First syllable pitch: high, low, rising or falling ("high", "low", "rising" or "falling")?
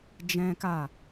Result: high